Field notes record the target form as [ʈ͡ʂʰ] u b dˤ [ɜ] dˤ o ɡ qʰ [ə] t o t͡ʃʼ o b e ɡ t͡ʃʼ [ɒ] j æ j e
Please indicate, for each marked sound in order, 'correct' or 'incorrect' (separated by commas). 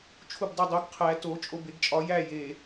incorrect, incorrect, incorrect, correct